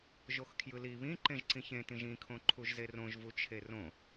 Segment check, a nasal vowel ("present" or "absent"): present